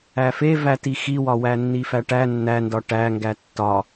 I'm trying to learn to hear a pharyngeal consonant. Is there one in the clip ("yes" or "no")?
no